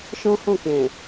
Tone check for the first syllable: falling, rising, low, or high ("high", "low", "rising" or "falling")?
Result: high